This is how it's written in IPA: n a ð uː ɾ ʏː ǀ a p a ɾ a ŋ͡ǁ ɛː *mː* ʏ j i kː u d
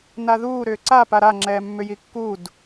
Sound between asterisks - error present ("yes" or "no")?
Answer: no